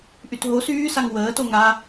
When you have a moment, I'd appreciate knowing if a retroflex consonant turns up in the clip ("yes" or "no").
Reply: no